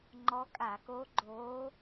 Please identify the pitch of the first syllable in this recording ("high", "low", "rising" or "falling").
rising